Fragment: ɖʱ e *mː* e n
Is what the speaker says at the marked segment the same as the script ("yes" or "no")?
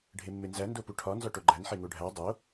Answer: yes